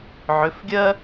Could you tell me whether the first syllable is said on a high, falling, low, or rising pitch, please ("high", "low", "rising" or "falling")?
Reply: rising